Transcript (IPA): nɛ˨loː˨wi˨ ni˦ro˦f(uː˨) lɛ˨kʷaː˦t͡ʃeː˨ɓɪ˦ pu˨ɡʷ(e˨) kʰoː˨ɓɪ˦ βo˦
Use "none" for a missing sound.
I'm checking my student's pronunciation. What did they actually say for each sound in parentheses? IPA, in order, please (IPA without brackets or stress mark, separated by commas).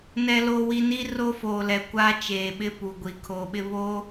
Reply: oː˨, i˨